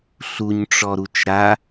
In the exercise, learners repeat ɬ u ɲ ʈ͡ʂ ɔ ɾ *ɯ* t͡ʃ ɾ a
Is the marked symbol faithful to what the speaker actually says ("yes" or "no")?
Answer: no